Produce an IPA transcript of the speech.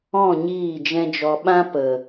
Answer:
ɔ̃˦˨ ɲ iː˦˨ d͡ʒ ɛ̃˦ d͡ʒ ɔ˧ ɓ ã˦ p ə˨

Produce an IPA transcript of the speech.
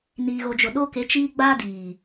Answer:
n iː˨ ɣ o˨ d͡ʒ ʊ˨ ɗ o˦ k e˨˦ t͡ʃ iː˦ ɡ͡b a˦ d iː˨

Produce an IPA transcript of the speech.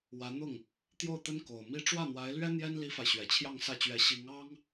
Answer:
w ä˧˥ n̪ ʊ˥˩ ŋ | t̪ j o˥˩ ʊ̯ t̪ ə˥ n k o˨˩ ʊ̯ m i˥ ʈ͡ʂ w ä˥˩ n̪ w a˧˥ ɪ̯ l ɥ ɛ˥ n̪ j ɛ˥ n l i˥ f a˨ ɪ̯ ɕ ɥ ɛ˨˩ t͡ɕʰ j ɑ˥˧ ŋ s ä˥˩ t͡ɕ ɥ ɛ˧˥ ɕ i˧˥ ŋ ɑ˥ ŋ

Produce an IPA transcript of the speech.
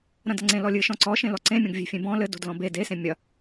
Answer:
ɾ ɐ̃ d ɐ ŋ͡ǀ ẽ l ɔ lʲ ɨ ʃ ɔ̃ ǀ ɔ ʃ ẽ l ɔ ǀ ẽ mʲ õ ɡ vʲ e̤ fʲ ẽ b ɔ̃ l ɘ d o̤ d l ɔ̃ b e d e s ẽ mʲ ɐ

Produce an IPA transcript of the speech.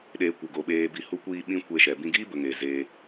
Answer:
ɗ eː˨ kʷ ə˨ ɡ o˨ ɓ eː˨ b i˨ h u˧ kʷ iː˧ ɓ ĩ˦ kʷ e˧ ʃ ɛ˨ b ĩ˧ ɡ iː˦ b ə˨ ŋ eː˨ z eː˧

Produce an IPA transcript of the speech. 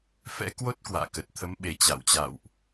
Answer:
f ɛ̰˧˥ k w o˦˥ t̚ k w a̰ː˧˨ k ə˨˩ t̚ t̪ʰ ə˨˦ m ɓ e˨˩ t͡ɕ a̰˧˨ w t͡ɕ a̰˧˨ w ʔ

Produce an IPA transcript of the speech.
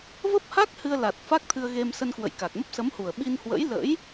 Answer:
v ə˦˥ p̚ h a˦˥ k̚ h ɨ˧ ə̯ l a˨˩ t̚ f a˦˥ k̚ t̪ʰ ɨ˧ ə̯ ɣ e˧ m s ə˧ n k w ə̰˧˨ j k a˨˩ k̚ m ə˦˥ p̚ s ə˨˦ m h u˨˩ ə̯ ɓ i˧ n h w ə̰˧˥ j l ə̰˧˥ j

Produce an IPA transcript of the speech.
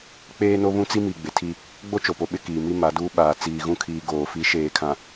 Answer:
k͡p eː˦ n o˦ β ũ˦ t͡s i˦ m i˨ ɡ͡b ɪ˨ tʰ i˦˨ | ɡ͡b o˦ t͡ʃ o˨ p o˨ ɓ ɪ˦ k iː˨ m i˦ m a˨˦ d uː˦ ɓ aː˨ t͡s iː˨ ɣ ũ˦ kʰ iː˨ ɡ oː˨ f i˨˦ ʃ eː˨ kʰ ã˨

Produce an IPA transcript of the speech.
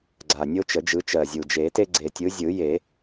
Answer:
ɡ͡ǀ a˨˩ nʲ o˦ t͡ʃ ə˨˩˦ d͡ʒ ɯ˨˦ t͡ʃ ɜ˨˩ zʲ u˨˩ d͡ʒ e˨˩˦ t e˦ ɡ͡ǀ e˨˩ tʲ ɯ˨˦ zʲ ɯ˨˩˦ j e˨˩˦

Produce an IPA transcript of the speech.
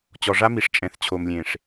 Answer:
t͡ɕ ɔ˨ ʐ a˦ m i˨ ʂ t͡ʃʼ ɛ̃˨ θ t͡ɕʰ o˨ m lʲ ẽ˨ ʂ

